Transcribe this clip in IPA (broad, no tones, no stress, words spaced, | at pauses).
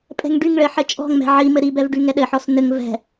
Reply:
pʼɛ̤ŋɖyŋɭɘ ħɘt͡ʃʼɔ̤ŋmɛ̤ ʕi mɘɾibɛv ɖyŋɛɗɘħɔs n̪ɘŋ vɛ̤